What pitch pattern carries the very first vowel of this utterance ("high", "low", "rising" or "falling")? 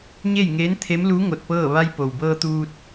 falling